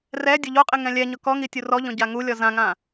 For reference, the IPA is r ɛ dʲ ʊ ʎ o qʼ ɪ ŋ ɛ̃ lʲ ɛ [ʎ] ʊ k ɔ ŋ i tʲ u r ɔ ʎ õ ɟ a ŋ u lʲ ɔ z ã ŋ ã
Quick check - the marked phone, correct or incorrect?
incorrect: ɲ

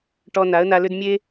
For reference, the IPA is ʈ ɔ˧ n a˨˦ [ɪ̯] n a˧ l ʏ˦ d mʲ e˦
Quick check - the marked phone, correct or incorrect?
incorrect: ə̯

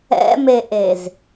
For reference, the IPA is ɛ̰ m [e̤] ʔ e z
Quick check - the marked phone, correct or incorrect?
incorrect: e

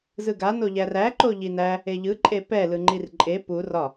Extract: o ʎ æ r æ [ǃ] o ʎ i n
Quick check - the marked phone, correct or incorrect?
correct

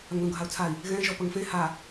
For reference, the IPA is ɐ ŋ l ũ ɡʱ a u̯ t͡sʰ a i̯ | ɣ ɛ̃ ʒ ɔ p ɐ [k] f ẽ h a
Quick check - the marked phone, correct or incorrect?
incorrect: ŋ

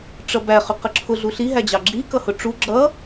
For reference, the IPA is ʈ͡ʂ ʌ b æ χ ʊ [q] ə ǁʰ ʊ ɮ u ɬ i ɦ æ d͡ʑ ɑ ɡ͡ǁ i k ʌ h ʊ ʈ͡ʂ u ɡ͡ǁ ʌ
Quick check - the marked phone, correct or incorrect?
correct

